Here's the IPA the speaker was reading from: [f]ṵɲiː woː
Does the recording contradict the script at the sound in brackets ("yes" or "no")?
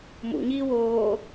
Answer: yes